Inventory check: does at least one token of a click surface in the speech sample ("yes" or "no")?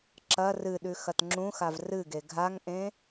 yes